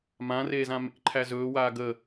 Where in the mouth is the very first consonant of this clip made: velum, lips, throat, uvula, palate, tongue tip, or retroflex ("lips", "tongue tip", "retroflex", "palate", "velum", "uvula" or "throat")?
lips